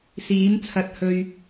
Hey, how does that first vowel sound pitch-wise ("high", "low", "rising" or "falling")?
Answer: rising